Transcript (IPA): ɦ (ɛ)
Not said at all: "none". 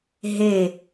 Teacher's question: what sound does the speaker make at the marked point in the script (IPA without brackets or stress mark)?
e